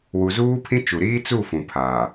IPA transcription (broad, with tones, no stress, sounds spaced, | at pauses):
w u˨ z uː˦ pʰ ĩ˦ t͡ʃ u˨ ɾ iː˦ t͡s u˦˨ f ũ˨ pʰ aː˨